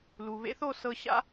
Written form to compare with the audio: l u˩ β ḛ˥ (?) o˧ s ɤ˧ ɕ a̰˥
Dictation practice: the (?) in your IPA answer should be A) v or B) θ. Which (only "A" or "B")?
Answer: B